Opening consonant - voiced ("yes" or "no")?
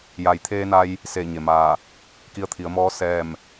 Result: yes